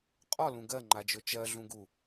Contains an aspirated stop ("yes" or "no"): no